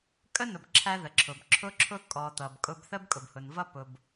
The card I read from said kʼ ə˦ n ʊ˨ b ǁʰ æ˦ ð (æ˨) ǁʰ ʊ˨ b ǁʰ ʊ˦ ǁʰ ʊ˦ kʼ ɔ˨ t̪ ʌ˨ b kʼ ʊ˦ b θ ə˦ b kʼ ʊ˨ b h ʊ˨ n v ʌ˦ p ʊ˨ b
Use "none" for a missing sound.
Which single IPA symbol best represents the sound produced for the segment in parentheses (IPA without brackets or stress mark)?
ə˨